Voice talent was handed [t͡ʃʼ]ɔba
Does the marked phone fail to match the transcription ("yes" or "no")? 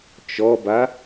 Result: yes